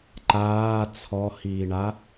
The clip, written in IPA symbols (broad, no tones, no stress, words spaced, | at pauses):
ǃaː t͡sʰɔhiːɳa